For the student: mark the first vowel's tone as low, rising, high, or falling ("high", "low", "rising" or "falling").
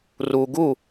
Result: low